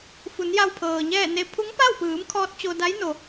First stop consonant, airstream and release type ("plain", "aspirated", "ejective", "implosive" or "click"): aspirated